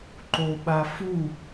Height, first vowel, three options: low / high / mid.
mid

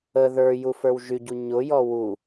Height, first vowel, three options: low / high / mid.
mid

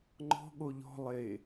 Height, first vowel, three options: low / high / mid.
mid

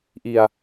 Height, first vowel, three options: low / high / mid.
high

